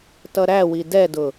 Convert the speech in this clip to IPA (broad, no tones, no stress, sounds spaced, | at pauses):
t ʌ ɾ æ w i d ɛ d ʊ